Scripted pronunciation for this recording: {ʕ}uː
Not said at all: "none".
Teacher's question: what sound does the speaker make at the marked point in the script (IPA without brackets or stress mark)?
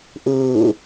ʔ